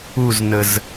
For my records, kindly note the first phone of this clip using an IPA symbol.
u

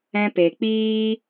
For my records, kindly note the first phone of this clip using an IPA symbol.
ɛ̃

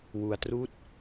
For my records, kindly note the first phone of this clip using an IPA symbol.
w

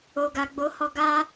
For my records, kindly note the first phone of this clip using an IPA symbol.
o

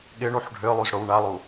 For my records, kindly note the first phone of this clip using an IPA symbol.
ɠ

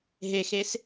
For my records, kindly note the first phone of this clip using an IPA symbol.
ɦ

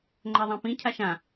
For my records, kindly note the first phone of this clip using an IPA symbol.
ŋ͡ǃ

